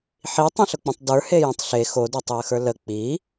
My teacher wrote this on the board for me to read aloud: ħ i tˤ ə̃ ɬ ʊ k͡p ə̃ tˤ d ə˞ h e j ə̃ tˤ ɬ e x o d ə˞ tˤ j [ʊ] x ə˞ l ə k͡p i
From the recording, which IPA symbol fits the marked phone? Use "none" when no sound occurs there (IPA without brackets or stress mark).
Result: ə